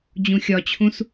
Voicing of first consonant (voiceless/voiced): voiced